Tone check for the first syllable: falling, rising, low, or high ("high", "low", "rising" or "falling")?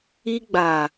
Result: high